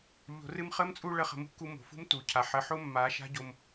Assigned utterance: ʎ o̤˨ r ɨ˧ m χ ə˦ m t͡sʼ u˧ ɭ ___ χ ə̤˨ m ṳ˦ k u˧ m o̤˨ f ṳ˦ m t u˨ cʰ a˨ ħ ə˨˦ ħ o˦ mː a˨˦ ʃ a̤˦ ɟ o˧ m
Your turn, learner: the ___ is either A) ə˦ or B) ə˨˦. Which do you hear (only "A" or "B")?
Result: B